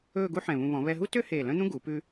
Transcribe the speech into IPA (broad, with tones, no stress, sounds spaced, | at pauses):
ɵː˥˧ ɡ u˥ ħ ɛ̃˧˩ β ũ˧ β ɔ̃˩˧ β ɛ˧ ɦ u˥ t ø˥ h eː˧˩ l œ̃˥ n̪ ũ˥ ɡ u˩˧ p ʉ˧